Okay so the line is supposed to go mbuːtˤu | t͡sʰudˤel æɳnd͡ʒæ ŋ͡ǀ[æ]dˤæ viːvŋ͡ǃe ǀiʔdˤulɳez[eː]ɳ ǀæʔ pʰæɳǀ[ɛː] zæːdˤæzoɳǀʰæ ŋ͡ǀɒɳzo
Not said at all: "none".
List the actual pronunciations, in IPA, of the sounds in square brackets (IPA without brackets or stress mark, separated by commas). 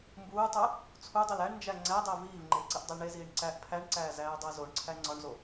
æ, iː, æː